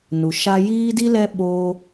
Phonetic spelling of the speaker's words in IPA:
n u˨ ʃ a˧ j iː˦ d i˦ l ɛ˦ ɓ o˦

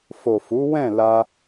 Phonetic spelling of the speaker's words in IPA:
f o˨ f u˨˦ w ɛ̃˦˨ l a˧

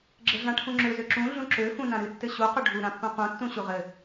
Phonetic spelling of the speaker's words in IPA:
ɡ͡ǁ ɘ ɮ ã ʈʰ ũ ŋ͡ǁ ø z ø ǁ ũ ɮ ũ ǁ ø f ũ n ã ɾ ɨ tː ɘ ɕ u q ʊ ɖʱ u ɾ ã pː ũ q ũ tː ũ ɕ u ʁ ɘ

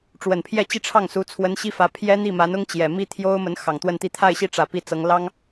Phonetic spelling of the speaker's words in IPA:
ʈ͡ʂ w ə˨˩ n pʰ j ɛ˥˧ t͡ɕ i˥˧ ʈ͡ʂʰ ɑ˥˩ ŋ s u˧˥ t͡sʰ w ə˧˥ n ɕ i˥ f ä˧˥ pʰ j ɛ˥ n̪ i˥˩ m a˧˥ n ʊ˥ ŋ t͡ɕ j ɛ˨˩ m i˥ t̪ʰ j o˥ ʊ̯ m ə˧˥ n x ɑ˨˩ ŋ t̪ w ə˥˧ n t̪ i˥˧ t̪ʰ a˥˧ ɪ̯ ɕ i˥˩ ʈ͡ʂ ä˨˩ p i˥˩ t͡s ɤ˧˥ ŋ l ɑ˥ ŋ

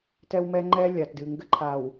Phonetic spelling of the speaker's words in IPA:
t ɛ˦ w m ɛ˦ ŋ͡ǃ ɛ˦ lʲ a˨ t d ɨ˨ ŋ ɡ ɘ˦ ǃʰ a˨ w

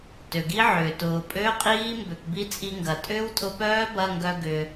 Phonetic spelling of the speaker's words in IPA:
t ø˩ ɡ i˦˥ ʕ ʏː˩ t ʊː˩ pʼ ø˧˥˧ qʼ iː˦˥ m b ø˩ k b i˦˥ t͡sʼ i˧ ŋ ɡ ɐ˩ tʼ ʏː˦˥ w tʼ ʊ˧ p œː˦˥ b ɐ˧˥˧ ŋ ɡ œ˧ ɡ ʏː˩

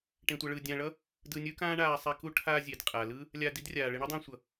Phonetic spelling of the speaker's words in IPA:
ʈ ẽ˧ tʷ ʌ˧ ɭ ɯː˧ dʲ ãː˧ ɭ ʌ˥ | d ɯː˧ nʲ ɯː˥ k ãː˥ ɳ aː˧ sˤ ɛ˧ k u˥ ʈʰ aː˧ zʲ e˩ d qʼ a˩ l ɯ˥ | lʲ aː˧ d i˥ d rʲ aː˩ ɭ e˧ ɳ u˥ dˤ ãː˧ sʷ ʌ˩

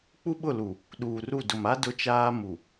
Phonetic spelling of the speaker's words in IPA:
k͡p u˦ ɓ ʊ˦˨ l u˨ | ɗ uː˨ r u˦˨ d ʊ˨ m a˦ d ʊ˦ t͡ʃ aː˦ m u˨

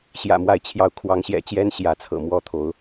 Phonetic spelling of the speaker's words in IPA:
ɕ j ä̰˨˩ m w a˥˨ ɪ̯ t͡ɕʰ j ɑ˥˨ ʊ̯ kʰ w ɑ˨˦ ŋ ɕ j ɛ̰˨˩ t͡ɕ j ɛ˦ n ɕ j ä˨˦ t͡sʰ ɤ̰˨˩ m w ɔ˦ t̪ʰ o˨˦ ʊ̯

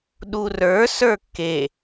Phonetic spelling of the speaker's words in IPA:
ɗ u r ə˞ s ə˞ kː e

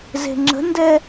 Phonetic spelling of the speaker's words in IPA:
z e̤ ŋ͡ǁ ə̤ n d ɛ

